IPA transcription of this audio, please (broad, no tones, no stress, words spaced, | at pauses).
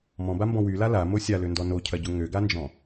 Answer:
mɔ̃bambɔ̃ wyla lamo sʲaløndɔ nocʰɐɟʊ ŋøɡand͡ʒɔ̃